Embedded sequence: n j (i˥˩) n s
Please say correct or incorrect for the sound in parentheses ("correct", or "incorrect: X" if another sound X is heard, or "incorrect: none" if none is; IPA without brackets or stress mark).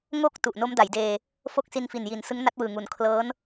incorrect: i˩˦